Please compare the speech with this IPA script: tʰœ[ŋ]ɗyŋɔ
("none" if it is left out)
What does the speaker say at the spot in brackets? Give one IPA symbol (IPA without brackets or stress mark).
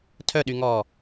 none